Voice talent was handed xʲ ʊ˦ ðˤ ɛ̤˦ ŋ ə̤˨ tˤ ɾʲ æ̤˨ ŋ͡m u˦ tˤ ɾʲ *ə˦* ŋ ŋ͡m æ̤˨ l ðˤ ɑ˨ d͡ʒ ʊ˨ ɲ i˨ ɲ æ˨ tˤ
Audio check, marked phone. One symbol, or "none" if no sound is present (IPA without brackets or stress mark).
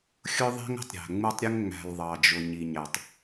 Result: ə˦